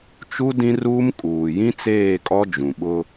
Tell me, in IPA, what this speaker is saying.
t͡ʃ u˦ d ĩ˦ r uː˦ m kʼ uː˨ j ĩ˦ t͡s eː˦˨ kʼ ɔ˦ d͡ʒ ũ˨ ɓ ʊ˦

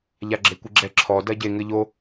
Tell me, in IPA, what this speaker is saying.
ʎ a ɡ͡ǁ e kʷ i ɡ͡ǁ ɛ ǁʰ ɔ d ɐ ɟ e ŋ ɘ ʎ o

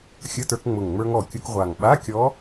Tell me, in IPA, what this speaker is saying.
xʲ ə˧˥˧ t ə˞˧ k ŋ͡m ʊ˨˩ ŋ ŋ͡m ə˞˧ ŋ ɔ˨˩ kʲ ʊ˧ k ʁʷ a˨˩ ŋ ɓ a˧˥˧ kʲ ɔ˧˥

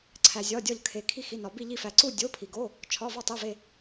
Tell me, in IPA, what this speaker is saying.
ǀʰ æ˧ zʲ ɒ˧˥˧ dʲ ɒ˥˧ ʎ kʰ e˧ kʰ i˥˧ x i˧˥˧ n ɒ˧ b i˥˧ ʎ i˥˧ f æ˧ ǀ u˥˧ dʲ o˧˥˧ pʰ i˧ ɡ o˧˥˧ | t͡ʃʰ ɒ˧˥˧ v ɒ˥˧ tˤ e˧˥˧ v e˥˧

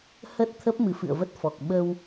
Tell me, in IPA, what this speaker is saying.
h ə˦˥ t̚ t̪ʰ ə˦˥ p̚ m ɨ˨˦ f ɨ̰˧˨ ə̯ v ə˦˥ t̚ f ɔ˨˩ k̚ ɓ ə˧ w

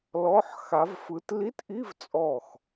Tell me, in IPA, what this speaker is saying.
l ɔ˧˥˧ ħ x a˨˦ v f ɯ˨˦ t l i˧˥˧ t ʔ i˧˥˧ v t͡sʼ ɔ˧˩ x

